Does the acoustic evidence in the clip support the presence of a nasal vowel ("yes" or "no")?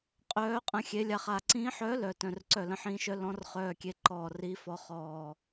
yes